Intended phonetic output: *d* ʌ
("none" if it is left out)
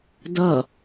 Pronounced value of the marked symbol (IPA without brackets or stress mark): d